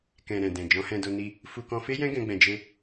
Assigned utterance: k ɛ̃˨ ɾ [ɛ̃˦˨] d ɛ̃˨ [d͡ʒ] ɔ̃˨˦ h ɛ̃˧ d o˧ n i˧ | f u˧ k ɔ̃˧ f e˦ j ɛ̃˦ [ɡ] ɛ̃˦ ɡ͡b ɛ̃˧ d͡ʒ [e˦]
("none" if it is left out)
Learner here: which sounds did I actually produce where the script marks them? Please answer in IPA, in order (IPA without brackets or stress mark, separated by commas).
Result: ɛ̃˨, d͡ʒ, ɡ, e˦